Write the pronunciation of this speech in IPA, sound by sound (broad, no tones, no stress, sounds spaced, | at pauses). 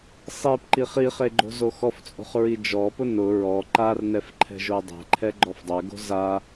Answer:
sˤ i p ǃ i χ i χ e ɡ͡ǃ o̤ z o x ɔ f t͡sʼ o̤ χ ɹ i d͡ʒ ɔ p ʊ n ʊ ɹ ɔ ǃ a r n ɛ f ǃʰ ɛ̤ ʒ o dˤ ɛ̤ ǃʰ ɛ ɡ͡ǃ ɔ f dˤ ɛ ɡ o̤ z a